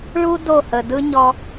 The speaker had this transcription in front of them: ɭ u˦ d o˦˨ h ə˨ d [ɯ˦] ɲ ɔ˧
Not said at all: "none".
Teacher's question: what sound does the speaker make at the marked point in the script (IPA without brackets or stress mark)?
ɯ˦